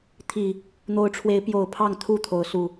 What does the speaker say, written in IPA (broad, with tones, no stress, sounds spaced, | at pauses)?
t̪ʰ i˨˩ | n̪ o˨˦ ʊ̯ ʈ͡ʂʰ w e˨˦ ɪ̯ p j o˨˩ ʊ̯ pʰ ɑ˥˨ ŋ t̪ʰ u˥˨ t̪ʰ o˨˦ ʊ̯ s u˨˩